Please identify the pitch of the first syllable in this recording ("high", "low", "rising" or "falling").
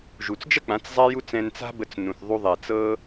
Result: low